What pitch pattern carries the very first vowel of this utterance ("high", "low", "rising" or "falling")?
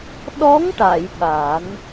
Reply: rising